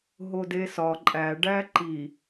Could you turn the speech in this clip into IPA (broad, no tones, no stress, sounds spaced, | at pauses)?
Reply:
ɦ o d e s ɒ ǃʼ æ ɖ æ ǃ i